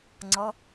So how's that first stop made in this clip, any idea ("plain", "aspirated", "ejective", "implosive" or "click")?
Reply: click